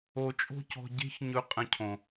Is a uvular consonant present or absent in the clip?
present